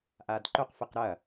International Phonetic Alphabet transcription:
ʔ a d ǃ ɵ q f ɨ q ɾ ɐ

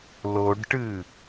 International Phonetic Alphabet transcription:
l o ɖ ʈ ɨ

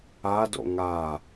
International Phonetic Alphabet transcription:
a d o̰ ŋ a

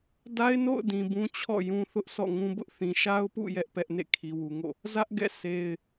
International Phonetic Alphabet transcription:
d a˦ ɪ̯ n o̰˦˨ ʊ̯ d ĩ˨ b ũ˦ t͡ɕʰ ɔ̰˦˨ j ũ˦ θ ʊ˦ ʔ s ɔ̰˦˨ ŋ ũ˦ b ʊ˦ ʔ θ ĩ˨ ʃ a˦ ʊ̯ p ṵ˦˨ j ɛ˦ ʔ p ɛ˦ ʔ n ḛ˦˨ kʰ i˨ w u˨ ŋ o̰˦˨ | z ä˦ ʔ ɡ ɛ̰˦˨ s e˦ ɪ̯

